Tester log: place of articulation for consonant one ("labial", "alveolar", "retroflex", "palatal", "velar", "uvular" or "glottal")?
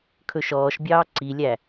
velar